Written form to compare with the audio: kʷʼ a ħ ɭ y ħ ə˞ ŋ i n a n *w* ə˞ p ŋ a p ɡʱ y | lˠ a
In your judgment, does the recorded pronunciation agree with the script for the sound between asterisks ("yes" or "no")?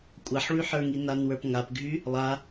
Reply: yes